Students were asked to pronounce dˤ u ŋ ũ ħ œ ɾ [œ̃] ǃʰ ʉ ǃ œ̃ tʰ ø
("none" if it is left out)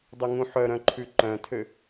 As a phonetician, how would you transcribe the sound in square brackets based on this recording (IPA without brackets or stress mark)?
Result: œ̃